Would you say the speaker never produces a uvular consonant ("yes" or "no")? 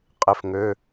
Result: no